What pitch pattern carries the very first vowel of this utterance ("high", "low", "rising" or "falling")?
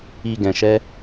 low